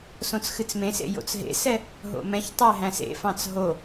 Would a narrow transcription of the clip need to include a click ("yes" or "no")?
no